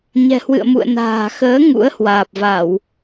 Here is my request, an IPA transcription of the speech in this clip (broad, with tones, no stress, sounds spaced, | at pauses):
ɲ ɛ̤˨˩ h w ɨ̰˧˨ ə̯ m ṵ˧˨ ə̯ n a̤ː˨˩ x əː˨˦ ŋ ṵ˧˥ ə̯ h w aː˨˩ p̚ v a˧˩˨ w